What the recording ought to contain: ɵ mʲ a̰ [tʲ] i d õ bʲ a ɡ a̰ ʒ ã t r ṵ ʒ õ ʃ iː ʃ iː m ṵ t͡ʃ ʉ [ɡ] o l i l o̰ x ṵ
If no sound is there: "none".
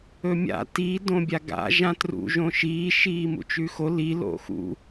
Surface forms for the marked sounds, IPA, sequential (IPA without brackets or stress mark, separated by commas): t, x